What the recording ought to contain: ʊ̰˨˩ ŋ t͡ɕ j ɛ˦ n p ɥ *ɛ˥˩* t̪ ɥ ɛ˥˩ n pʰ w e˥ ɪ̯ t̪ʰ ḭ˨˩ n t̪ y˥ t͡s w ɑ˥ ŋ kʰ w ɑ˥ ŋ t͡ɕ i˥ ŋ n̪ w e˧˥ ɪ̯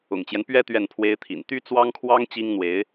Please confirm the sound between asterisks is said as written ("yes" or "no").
no